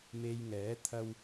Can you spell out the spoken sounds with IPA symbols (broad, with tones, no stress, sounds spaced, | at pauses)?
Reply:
m e˧ j ŋ ɛː˨˥ t̪ʰ ɐ˧ w